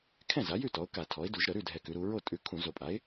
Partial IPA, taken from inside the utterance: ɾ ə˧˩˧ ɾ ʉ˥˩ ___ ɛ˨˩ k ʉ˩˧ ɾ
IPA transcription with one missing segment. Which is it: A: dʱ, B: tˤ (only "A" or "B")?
A